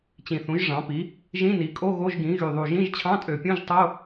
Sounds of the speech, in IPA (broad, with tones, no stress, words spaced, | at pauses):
t͡ɕĩ˨˩θũ˩˥ʒʐɑ̃˩˥pi˩˥ | ʒĩ˧˥˧ni˩˥kʼo˧˥˧ ɣo˧˥˧ʒɡĩ˩˥ ɣy˨˩ðˤu˨˩ ʒĩ˧˥˧ʒt͡ɕʰɑ̃˧˥˧tʼø˨˩pʲũ˧˥˧ʒ tˤo˧˥˧